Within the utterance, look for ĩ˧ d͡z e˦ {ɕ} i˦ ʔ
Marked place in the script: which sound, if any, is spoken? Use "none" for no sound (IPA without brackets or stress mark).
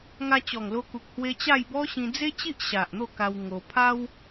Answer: t͡ɕ